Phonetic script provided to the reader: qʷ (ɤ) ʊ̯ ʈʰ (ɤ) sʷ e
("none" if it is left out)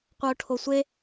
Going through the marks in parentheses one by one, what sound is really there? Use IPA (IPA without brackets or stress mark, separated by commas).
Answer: ɤ, o